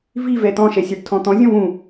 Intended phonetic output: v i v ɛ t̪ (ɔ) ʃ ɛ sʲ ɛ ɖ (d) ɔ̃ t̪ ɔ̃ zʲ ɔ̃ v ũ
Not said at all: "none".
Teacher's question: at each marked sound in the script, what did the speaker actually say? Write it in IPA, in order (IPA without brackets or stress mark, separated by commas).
ɔ̃, tʰ